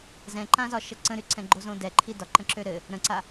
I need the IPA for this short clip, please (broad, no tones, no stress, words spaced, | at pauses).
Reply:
zɛ̃ǃãzɒ ʃəǀə̃ɾy ǀɛ̃ɡ͡ǃozõdɛ ǃʰidɒǃə̃ǁø ɾɘ | ɾə̃ǀa